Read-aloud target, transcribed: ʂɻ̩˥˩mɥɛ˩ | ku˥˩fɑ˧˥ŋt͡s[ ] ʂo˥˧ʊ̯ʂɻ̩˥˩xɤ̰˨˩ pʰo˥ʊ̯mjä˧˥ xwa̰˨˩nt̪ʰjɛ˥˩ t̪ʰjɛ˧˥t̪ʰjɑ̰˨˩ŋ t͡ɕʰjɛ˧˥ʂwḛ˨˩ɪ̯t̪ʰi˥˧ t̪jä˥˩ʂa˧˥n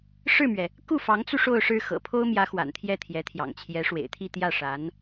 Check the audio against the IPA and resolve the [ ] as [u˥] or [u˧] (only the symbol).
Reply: u˧